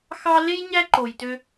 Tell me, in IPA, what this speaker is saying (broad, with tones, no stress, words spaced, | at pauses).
xɑ˥ le˥j ɲæ˥ǃo˨jtø˦